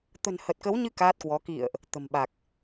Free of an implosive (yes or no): no